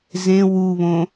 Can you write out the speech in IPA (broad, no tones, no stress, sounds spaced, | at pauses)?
z ẽ w u β õ